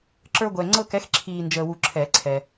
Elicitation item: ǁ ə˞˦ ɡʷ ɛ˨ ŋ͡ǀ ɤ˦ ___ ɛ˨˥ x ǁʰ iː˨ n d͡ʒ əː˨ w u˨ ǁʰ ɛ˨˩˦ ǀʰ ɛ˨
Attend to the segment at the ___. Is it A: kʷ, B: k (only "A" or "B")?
B